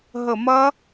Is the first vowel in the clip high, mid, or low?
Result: mid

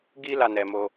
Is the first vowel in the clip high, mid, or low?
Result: high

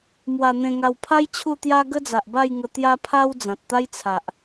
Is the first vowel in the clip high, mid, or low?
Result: low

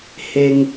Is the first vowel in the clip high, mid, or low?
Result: mid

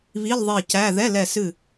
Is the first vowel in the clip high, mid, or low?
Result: high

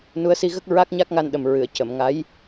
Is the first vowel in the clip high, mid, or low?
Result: high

